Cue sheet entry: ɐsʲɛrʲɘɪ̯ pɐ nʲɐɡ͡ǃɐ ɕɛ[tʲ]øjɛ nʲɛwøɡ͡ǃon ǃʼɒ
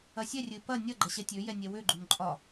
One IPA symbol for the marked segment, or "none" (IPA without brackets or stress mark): tʲ